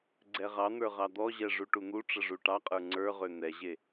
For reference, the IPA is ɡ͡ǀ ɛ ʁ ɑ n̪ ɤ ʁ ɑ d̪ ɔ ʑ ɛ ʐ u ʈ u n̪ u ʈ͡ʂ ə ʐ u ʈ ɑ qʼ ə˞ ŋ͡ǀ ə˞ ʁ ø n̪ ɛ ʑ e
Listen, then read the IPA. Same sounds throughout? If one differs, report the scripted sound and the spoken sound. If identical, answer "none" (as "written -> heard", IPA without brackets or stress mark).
ɤ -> ə˞